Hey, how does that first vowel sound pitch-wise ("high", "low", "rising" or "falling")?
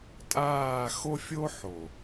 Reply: falling